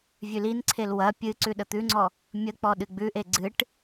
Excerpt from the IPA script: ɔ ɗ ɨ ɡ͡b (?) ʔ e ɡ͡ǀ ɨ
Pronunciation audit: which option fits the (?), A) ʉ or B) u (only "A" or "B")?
A